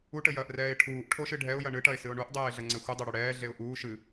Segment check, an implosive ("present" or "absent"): absent